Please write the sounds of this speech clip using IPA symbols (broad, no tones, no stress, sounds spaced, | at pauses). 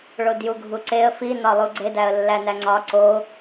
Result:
ɭ o d j u ɡʱ u ǀ e ə̯ f i n ɒ lˠ u ɡ͡ǀ e d æ ə̯ lː æ n æ ŋ͡ǀ ɒ ǀ o